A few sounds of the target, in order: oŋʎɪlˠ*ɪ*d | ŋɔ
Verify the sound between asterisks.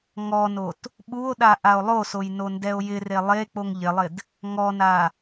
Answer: correct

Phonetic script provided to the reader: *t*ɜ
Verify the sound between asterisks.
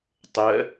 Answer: incorrect: tˤ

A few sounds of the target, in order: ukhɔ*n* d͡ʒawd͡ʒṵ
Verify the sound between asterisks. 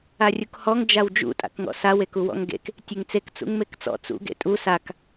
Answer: incorrect: ŋ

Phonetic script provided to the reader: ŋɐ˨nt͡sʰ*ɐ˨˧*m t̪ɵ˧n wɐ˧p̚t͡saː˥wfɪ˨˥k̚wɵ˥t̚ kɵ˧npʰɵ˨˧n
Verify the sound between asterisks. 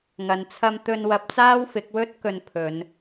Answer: incorrect: ɐ˧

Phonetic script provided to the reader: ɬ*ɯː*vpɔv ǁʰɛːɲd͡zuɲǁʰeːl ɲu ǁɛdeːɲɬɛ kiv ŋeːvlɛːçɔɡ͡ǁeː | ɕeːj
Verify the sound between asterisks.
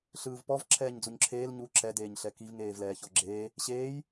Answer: correct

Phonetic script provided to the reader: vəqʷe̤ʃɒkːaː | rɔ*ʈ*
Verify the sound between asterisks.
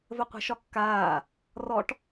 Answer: correct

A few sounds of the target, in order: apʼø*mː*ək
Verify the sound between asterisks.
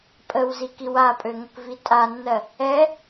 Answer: incorrect: ŋ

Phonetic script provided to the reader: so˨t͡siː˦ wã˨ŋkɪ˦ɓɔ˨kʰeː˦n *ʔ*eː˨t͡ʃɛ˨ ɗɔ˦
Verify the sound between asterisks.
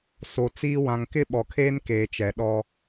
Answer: incorrect: k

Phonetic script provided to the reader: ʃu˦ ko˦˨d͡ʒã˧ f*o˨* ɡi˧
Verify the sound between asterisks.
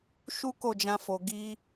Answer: correct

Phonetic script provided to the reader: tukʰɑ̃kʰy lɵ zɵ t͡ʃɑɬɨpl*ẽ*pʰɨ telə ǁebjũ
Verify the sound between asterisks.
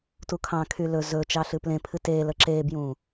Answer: correct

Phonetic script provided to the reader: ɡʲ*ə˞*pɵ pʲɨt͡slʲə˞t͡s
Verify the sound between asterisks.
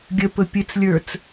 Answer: incorrect: ə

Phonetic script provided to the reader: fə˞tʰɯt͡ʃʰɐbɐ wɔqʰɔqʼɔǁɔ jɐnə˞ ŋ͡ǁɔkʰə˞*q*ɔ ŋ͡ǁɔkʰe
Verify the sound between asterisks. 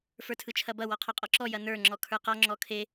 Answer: correct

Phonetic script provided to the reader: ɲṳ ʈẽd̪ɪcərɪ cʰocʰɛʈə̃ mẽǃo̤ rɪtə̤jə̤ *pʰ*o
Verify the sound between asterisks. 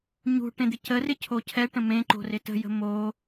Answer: incorrect: m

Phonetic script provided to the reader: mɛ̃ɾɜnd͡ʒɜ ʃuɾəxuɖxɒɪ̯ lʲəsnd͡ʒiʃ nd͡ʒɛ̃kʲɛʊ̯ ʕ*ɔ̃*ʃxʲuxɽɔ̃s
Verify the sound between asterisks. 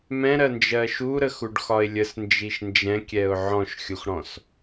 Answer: correct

